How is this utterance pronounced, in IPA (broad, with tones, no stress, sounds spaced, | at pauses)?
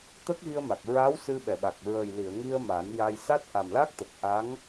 t̪ ə˦˥ k̚ ɣ i˧ ə̯ m a˨˩ k̚ ɹ a˧˥ w s ɨ˧ ɓ ɛ˨˩˨ ɓ a˨˩ k̚ ɹ ə˨˩ j l i˨˩˨ ə̯ ŋ i˧ ə̯ m a˨˩˦ n j a˧ j s a˦˥ t̚ ʔ a˨˩ m l a˦˥ k̚ t̪ ə˨˩ k̚ ʔ a˧˥ ŋ